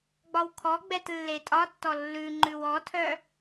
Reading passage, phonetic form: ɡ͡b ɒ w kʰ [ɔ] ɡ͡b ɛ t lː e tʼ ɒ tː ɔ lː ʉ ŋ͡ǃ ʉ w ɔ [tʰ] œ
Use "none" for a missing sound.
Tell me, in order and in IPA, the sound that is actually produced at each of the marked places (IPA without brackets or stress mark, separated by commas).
ɔ, tʰ